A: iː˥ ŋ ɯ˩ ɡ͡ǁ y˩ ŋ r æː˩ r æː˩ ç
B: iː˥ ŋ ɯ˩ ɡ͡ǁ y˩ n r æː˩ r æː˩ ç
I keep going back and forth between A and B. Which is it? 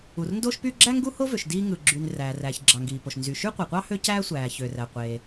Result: B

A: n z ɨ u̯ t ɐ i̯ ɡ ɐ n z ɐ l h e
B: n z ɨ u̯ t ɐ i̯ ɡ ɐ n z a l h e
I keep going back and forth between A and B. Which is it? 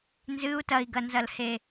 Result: A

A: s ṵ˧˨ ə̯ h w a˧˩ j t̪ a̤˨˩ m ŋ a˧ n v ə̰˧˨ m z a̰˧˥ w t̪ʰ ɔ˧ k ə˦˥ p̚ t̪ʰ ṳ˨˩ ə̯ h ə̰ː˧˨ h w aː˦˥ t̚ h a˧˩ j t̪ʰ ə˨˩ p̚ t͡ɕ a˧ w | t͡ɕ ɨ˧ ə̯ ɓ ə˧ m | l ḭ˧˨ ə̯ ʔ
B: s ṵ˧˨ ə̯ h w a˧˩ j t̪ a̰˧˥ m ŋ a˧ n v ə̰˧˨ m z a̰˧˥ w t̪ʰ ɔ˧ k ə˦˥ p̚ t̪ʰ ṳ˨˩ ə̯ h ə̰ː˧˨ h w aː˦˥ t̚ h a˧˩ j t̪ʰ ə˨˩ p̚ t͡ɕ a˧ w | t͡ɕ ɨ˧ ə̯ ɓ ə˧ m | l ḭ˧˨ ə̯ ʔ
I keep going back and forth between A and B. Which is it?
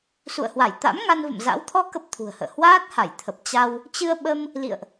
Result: B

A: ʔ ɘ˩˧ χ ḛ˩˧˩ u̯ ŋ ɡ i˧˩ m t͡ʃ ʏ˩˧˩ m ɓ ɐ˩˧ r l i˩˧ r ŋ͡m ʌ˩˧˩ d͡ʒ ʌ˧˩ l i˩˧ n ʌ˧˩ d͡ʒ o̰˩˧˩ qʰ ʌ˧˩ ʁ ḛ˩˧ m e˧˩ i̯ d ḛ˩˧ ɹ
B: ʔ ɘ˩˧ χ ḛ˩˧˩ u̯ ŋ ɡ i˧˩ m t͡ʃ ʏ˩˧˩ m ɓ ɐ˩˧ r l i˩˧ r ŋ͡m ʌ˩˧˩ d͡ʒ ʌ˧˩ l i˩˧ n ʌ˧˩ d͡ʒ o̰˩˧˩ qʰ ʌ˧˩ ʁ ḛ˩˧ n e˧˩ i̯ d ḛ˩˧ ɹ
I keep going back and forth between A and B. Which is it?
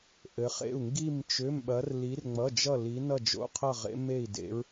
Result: A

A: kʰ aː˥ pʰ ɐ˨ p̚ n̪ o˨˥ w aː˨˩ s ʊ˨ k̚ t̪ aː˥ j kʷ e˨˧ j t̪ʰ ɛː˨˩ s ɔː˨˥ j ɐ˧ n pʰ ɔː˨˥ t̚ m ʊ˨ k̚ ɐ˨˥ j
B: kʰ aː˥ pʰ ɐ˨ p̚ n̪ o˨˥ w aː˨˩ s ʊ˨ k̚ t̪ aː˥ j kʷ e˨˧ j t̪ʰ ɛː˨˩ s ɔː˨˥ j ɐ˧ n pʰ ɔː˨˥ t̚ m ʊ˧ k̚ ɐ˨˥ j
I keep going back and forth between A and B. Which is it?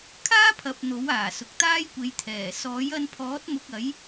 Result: B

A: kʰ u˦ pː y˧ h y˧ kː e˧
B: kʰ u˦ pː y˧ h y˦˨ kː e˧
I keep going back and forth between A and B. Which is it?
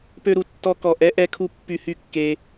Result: B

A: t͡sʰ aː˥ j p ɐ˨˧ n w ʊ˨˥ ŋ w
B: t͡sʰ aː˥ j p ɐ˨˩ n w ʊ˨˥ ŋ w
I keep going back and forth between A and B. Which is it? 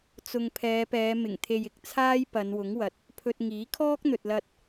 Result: A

